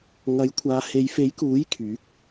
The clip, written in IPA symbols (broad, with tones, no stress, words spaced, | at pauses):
ŋɐ˨˥jkʷʰaː˨˧ he˨˧jfe˨˥jkuː˨˥j kʰyː˨˥k̚